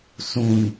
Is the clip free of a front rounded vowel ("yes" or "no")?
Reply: yes